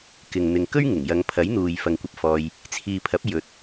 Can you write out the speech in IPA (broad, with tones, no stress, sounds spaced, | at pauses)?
k ɪ˨ ŋ n̪ ɪ˨ ŋ k ɵ˥ ɥ ŋ ɪ˨˩ ŋ j ɐ˨˧ ŋ pʰ ɐ˨˥ j n̪ uː˨ j f ɐ˨ ŋ kʷ ɐ˧ p̚ f ɔː˧ j | t͡sʰ iː˨ pʰ ɐ˨˥ p̚ j ɵ˨˥ t̚